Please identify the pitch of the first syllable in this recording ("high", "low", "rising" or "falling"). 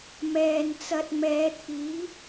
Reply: low